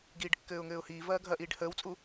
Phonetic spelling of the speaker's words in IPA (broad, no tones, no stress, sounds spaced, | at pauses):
ɡ iː ɖ kː ɘː ʊ̯ ŋ ɘː ʊ̯ h iː v ɐː ɡʱ ɐ ʔ iː ɖ h əː w t͡sʼ u